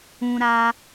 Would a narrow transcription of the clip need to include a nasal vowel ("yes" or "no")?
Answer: yes